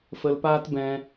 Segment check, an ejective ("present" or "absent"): absent